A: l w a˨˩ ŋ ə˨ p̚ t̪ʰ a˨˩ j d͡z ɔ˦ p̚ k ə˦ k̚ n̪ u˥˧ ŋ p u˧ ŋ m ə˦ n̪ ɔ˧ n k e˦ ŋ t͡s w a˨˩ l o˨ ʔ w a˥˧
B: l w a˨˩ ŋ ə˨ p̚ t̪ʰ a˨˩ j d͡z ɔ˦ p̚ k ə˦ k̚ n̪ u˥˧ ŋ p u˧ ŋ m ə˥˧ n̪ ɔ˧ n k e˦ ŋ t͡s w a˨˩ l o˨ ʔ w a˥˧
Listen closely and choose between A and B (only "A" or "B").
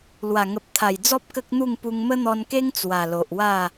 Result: A